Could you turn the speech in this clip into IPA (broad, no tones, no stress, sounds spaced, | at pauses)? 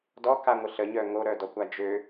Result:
d ɔ k a ŋʷ ə ɬ ə ɲ œ ŋ o ɾ œ d ɔ kʷ a d͡ʒ ø